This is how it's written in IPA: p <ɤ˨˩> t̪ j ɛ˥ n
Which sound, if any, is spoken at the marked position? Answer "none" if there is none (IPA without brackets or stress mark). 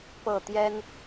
ɤ˥˩